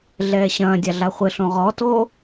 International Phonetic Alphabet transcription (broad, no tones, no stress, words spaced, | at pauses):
ɮɛːɕɐ̃ːdʲa ɮaχʷɘɬõ ʁɔto